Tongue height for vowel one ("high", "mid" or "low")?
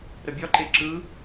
mid